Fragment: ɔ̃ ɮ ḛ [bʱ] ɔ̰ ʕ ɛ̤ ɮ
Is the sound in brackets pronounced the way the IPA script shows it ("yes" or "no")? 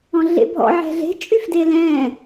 yes